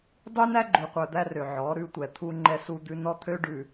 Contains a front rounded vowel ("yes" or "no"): yes